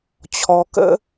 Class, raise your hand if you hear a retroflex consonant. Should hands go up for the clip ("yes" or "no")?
no